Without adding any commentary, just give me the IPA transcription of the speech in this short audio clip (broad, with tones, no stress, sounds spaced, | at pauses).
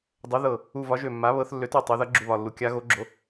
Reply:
dˤ ø˩˧ ð ɤ˨˩ | u˨˩ v ɒ˩˧ ʒ ø˨˩ mː a˩˧ β ɤ˩˧ θ lː ø˩˧ t ø˨˩ tˤ ø˩˧ ð ʌ˩˧ ɡ͡ǁ u˨˩ β ɒ˨˩ lː u˩˧ kʲ a˩˧ ɣ o˩˧ ɡ͡ǁ o˩˧